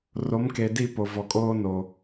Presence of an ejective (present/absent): present